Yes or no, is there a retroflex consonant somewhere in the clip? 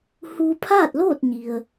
no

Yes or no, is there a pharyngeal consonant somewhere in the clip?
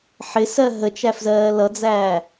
yes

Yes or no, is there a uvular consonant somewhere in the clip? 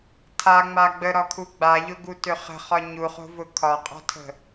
yes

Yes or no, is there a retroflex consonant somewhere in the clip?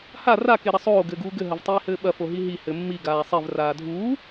no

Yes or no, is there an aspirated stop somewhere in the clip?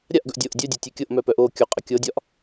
no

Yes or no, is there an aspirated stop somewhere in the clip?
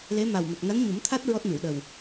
yes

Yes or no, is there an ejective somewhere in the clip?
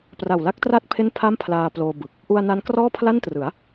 no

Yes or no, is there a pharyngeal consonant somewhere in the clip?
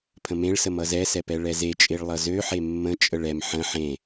yes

